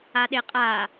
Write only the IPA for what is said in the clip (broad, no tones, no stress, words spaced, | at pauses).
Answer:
aɗeqʼa